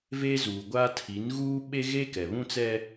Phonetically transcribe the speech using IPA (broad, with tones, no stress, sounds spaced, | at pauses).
v eː˦ z uː˨ ɡʷ aː˦ tʰ i˨˦ n ɣ uː˦ ɓ e˦ ɣ e˦ k ɛ˨ β ũ˦ t͡s ɛ˦